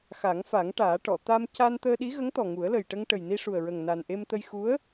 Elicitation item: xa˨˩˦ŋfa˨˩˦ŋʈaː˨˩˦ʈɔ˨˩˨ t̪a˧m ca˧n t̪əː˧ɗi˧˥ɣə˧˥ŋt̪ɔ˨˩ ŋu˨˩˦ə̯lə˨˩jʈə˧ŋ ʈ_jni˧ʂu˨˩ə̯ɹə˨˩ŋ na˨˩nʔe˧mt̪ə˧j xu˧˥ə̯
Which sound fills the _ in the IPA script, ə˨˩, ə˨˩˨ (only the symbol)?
ə˨˩